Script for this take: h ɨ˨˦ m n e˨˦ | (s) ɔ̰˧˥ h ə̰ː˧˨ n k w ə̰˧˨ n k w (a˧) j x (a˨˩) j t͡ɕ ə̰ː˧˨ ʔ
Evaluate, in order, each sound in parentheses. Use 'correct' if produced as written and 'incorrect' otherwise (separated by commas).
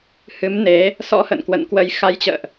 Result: correct, incorrect, incorrect